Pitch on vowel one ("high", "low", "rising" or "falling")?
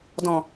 low